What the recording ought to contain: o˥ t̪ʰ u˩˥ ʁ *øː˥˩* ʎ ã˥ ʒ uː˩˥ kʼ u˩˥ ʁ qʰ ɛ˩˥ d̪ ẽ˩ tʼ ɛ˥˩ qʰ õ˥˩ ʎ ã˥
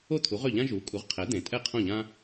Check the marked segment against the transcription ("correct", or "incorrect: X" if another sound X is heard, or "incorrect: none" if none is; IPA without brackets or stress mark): incorrect: ø˥˩